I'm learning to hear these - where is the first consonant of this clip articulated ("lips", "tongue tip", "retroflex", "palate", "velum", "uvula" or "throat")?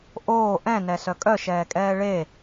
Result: throat